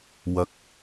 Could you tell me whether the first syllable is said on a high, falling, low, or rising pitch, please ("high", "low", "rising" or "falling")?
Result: rising